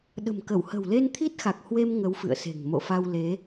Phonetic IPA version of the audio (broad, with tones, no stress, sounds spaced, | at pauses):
ɗ ə̤˨˩ m k ə˧˩ w h ə̤˨˩ w l e˧ n t̪ʰ i˦˥ t̚ x a˨˩ k̚ h w e˧ m ŋ ə˨˦ w f ɨ̰˧˨ ə̯ s e̤˨˩ ŋ m o̰˧˨ f a˧ w l e˨˦